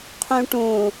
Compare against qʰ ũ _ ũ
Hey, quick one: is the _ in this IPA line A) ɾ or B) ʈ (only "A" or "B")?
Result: B